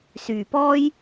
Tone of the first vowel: low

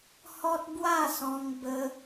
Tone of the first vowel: high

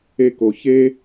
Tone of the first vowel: high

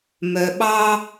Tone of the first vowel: low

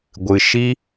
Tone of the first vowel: low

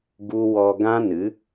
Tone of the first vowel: high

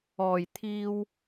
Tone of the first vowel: low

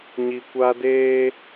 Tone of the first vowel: low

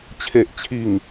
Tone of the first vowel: low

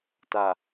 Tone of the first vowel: low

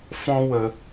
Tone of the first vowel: high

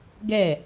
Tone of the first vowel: falling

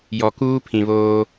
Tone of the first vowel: low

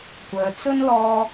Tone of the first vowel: low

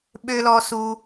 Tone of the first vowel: high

